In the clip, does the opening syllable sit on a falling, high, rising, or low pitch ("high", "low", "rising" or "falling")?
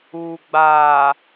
low